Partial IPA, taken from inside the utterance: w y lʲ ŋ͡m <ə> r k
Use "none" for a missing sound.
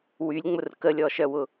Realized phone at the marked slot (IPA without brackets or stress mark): ʊ